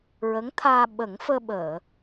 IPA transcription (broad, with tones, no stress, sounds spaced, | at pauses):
ɹ ə˧˥ ŋ t̪ʰ aː˧ ɓ ə˨˩˦ ŋ f əː˧ ɓ əː˨˩˨